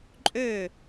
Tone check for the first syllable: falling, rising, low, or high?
falling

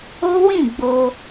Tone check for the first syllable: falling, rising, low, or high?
high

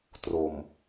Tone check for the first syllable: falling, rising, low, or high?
low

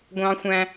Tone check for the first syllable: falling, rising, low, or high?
high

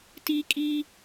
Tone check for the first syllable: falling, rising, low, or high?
high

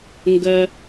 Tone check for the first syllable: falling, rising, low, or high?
high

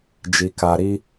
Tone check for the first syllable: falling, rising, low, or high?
low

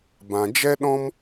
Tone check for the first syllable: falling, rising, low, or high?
low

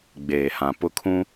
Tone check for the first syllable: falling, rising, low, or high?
low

